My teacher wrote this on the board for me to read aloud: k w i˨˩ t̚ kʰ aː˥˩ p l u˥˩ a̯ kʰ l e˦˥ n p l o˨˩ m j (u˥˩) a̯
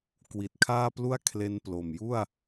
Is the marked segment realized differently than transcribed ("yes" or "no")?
no